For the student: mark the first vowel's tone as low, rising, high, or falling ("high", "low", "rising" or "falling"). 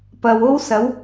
low